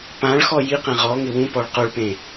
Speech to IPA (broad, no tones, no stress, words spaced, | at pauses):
pãɭxɔ jiqɛ̃ ʁɔ ŋɪwũ pɔɭqoɭpẽ